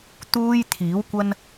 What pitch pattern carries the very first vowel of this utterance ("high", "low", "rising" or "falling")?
high